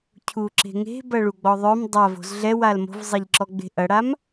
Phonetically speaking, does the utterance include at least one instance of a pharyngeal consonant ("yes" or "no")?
no